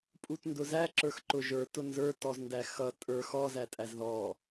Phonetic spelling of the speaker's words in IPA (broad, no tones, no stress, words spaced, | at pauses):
pʼutndʊzæ ǁə˞xǃʊ ʒə˞t ʊnzə˞ tɔzndæxʌ tʼə˞ xɔzæ tʼæzðɔ